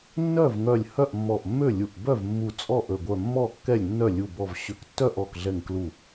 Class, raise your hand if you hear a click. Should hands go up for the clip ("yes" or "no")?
no